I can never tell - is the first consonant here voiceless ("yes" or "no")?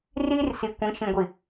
no